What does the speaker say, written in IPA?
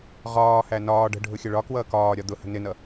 ʁɒːhæ nɒː ɖə̤ ɖʱʊxʲəɭɒkwʌː kɒː ɾʲɒd̪ʊhə̤ nɪnʌ

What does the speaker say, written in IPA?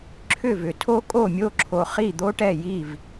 ǁʰʏ˥˩vʏ˨tʰo˥ kʼo˥˩mʲo˥˩ǁʰo˨ χi˥˩d̪o˥ʈɛ˥˩ji˥˩v

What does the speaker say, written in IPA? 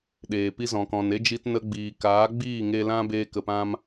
ɗeː˨ pi˧zɔ̃˨kɔ̃˨n e˦d͡ʒi˧tnə˧ ɡ͡biː˨kaː˨˦ɡ͡biː˦˨ ŋe˧lã˦ beː˧kə˨pã˧m

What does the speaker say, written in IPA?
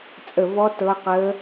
t͡sʼə˦˨vɔ˦˥ tɤ˦˥qəː˦˥

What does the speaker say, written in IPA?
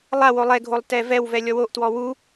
lˠawo lˠɛɡʱolˠ tɛvɛwvɛ lʲɔwoʔtwɔ wu

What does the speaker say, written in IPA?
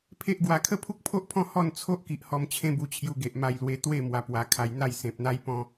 pʰe˦ʔɡwa˧ kʰə˥˧pʰu˦k̚pʰo˦ʔpʰɔ̃˦ hɔ˥˧nt͡sʰo˦ʔki˨ʔ hɔ˧mt͡ɕʰẽ˦bu˧t͡ɕʰju˧ ɡe˨ʔma˧jlwe˧ t̪we˥˧ mwa˧pwa˧kʰa˧j n̪a˥˧j sẽ˨p̚n̪a˦j pɔ̃˦

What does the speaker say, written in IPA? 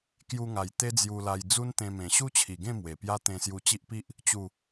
kju˧ŋa˨˩j t̪e˦d͡zju˧la˧j d͡zu˦nt̪ẽ˧mẽ˨˩ ɕu˦t͡ɕʰi˨˩ɡẽ˥˧ mwe˨˩pja˦ t̪ẽ˧sju˧ t͡ɕi˦ʔpi˦ʔ | t͡ɕu˨˩

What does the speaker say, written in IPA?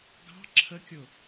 ɡɑ̤ ǁʰəkʲʊ

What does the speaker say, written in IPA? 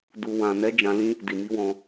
du˨wã˨nɛ˨˦ d͡ʒã˧lĩ˦ | di˨mi˧wɔ̃˧

